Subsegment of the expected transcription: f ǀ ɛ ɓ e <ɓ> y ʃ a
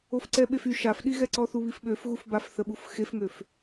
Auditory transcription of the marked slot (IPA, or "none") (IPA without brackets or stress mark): f